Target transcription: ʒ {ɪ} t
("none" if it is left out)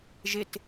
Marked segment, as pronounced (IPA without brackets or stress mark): ɪ